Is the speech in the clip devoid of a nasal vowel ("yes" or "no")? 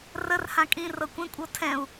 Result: no